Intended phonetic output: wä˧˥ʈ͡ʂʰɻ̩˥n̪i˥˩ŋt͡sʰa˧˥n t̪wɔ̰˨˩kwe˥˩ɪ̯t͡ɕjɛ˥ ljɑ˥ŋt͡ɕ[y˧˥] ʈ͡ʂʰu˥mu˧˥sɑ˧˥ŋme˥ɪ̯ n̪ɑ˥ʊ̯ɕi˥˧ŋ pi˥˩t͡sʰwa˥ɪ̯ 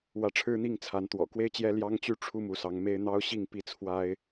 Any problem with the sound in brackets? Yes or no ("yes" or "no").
yes